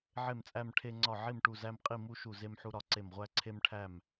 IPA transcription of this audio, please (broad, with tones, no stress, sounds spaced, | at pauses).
ʕ e˥˩ m t͡sʼ æ˥˧ m ʈʰ e˥˧ ŋ͡ǀ ɒ˥˩ ʕ i˥˩ m ʈ u˥˩ z æ˥˧ m qʼ i˥˩ m u˥˧ ʃ u˥˩ z e˥˧ m ħ u˥˧ ɾ ɒ˥˩ ǀ e˥˩ m ʁʷ æ˥˧ ǀʰ e˥˧ m ʈʰ æ˥˩ m